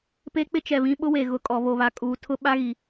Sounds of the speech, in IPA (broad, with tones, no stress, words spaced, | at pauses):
pe˦k͡pɪ˦t͡ʃɛ˨ βĩ˦ɓʊ˦we˨ ɣʊ˨ kʼɔ˨βo˨βa˨kʼuː˨ tʰʊ˦ɓa˦ɣi˨